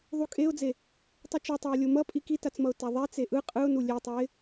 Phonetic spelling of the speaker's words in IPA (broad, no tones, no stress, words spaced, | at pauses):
ðˤukʼeʊ̯d͡ze | tˤɯt͡ʃotˤaʊ̯ lʲomʌpʼi kitat͡smʌʊ̯ taðˤɛ t͡seʔɯ qʼɯʊ̯nu lʲetˤɛɪ̯